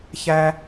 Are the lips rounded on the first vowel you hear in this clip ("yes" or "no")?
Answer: no